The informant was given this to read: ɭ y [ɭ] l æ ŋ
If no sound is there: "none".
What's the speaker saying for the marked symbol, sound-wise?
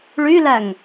none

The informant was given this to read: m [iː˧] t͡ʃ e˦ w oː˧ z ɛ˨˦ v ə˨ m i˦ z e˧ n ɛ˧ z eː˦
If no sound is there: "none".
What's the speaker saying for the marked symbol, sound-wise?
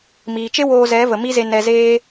iː˨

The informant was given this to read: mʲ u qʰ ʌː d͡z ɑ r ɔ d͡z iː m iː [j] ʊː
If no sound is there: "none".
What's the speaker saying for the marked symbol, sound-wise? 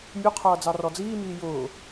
j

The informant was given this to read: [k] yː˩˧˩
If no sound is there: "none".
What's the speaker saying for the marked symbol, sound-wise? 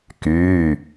k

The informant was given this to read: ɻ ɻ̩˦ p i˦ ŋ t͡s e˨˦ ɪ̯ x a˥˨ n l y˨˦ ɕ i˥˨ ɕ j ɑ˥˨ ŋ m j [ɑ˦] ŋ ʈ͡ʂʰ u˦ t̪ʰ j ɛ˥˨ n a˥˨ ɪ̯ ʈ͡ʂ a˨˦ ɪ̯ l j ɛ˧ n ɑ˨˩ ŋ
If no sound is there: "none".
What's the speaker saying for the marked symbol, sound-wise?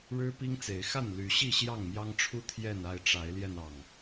ɑ˦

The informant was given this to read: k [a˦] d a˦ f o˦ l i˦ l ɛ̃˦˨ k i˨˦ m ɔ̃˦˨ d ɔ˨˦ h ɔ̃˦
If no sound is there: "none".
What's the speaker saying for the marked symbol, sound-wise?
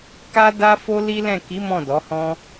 a˦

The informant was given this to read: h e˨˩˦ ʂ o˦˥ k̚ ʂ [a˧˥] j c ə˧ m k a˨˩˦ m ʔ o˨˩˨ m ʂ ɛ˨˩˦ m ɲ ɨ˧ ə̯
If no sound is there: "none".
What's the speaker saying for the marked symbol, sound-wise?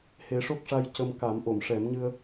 a˧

